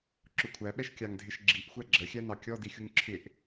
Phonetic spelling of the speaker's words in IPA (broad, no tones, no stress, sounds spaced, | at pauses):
ǁ ʊ kʷʰ æ ɓ ɛ ʃ kʲ ɑ ŋ dʱ ɪ ʃ ɡ͡ǁ i ʔ xʷ æ ɡ͡ǁ ə xʲ æ n ɑ kʲ ɔ d i xʲ u ŋ ǁʰ ɪ ʔ